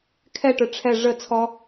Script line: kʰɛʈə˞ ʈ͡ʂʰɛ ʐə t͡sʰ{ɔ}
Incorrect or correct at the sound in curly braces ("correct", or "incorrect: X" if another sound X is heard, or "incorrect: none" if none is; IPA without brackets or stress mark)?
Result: correct